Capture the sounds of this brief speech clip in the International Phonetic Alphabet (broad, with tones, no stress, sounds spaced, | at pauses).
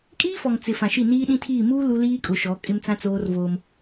kʼ iː˦ f ɔ˨ ŋ t͡s ɪ˨ f ã˨ ʃ i˦˨ n iː˦ ɗ ĩ˦ tʰ iː˦˨ m uː˦ l u˦ l iː˦ kʼ ʊ˨ ʃ ɔ˨˦ kʼ ɪ˦ m t͡s ã˦ t͡s oː˦ r v oː˦ m